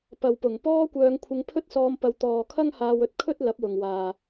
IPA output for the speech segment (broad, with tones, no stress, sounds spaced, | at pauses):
p ɐ˨ w p ʊ˨˩ ŋ p ɔː˥ kʷ œː˧ ŋ kʷʰ ɪ˧ ŋ pʰ ɵ˥ t̚ s ɔː˧ m p ɐ˧ w t̪ ɔː˨ kʰ ɐ˥ ŋ h aː˧ w ɵ˧ t̚ kʰ ɵ˥ t̚ l ɐ˨˥ p̚ w ʊ˨ ŋ w aː˨